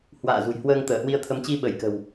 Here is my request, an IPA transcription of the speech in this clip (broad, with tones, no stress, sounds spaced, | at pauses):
h w a̰ː˧˨ z ṳ˨˩ j h w əː˧ ŋ t̪ əː˧˩ h w i˧ ə̯ t̪ʰ ə˨˦ m t͡ɕ i˧ ɓ ə˧˩ j k ə̤˨˩ w